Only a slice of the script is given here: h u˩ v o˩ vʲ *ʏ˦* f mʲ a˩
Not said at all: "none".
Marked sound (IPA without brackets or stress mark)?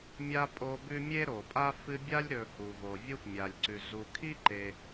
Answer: u˦